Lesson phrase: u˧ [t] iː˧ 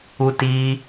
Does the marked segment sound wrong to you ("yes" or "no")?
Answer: no